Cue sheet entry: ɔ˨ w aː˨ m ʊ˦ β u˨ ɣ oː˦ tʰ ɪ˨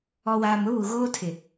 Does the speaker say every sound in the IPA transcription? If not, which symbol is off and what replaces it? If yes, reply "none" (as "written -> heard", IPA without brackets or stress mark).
none